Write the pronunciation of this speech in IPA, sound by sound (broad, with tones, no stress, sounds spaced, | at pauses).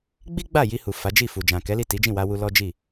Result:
ɡ͡b i˦ ɡ͡b a˦˨ j i˧ h u˨ f a˨˦ d͡ʒ i˦˨ f u˨ d͡ʒ ã˨ k ɛ˨˦ l i˦˨ t i˨˦ d͡ʒ ĩ˦˨ w a˧ w u˧ l ɔ˦ d͡ʒ i˦˨